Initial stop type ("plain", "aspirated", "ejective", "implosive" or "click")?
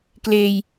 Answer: plain